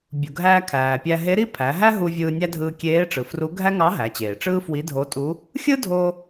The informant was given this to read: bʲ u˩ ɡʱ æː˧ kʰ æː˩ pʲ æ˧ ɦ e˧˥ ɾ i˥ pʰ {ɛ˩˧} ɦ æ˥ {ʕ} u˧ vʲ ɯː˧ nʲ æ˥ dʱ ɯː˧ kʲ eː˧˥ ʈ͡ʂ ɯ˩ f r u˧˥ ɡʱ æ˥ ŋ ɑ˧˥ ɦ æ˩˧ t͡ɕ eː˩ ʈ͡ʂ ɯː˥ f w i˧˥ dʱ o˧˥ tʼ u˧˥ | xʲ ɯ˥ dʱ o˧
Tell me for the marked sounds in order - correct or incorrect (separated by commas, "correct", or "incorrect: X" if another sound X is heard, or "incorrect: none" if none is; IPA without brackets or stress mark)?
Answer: incorrect: æ˩˧, incorrect: ɦ